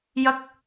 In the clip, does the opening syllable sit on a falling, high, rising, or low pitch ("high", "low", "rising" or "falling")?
high